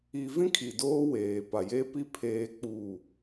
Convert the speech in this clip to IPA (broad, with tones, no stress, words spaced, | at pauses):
i˦ vĩ˦kʰi˨ doː˦ weː˨ pa˨je˦pi˦ pʰeː˦k͡puː˦˨